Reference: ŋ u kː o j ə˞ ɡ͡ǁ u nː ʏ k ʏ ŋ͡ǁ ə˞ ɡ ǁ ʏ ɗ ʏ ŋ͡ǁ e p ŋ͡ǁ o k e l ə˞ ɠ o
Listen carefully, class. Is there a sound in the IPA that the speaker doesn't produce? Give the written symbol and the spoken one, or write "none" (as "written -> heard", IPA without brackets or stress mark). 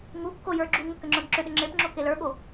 nː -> ŋ